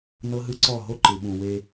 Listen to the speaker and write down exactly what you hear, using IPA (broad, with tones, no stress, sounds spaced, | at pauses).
n ɤ˦ ɦ ɯ˦ ǀ ɔ˦˨ ɦ o˦ ǃ ɯ˨ ɓ ũ˨ w e˦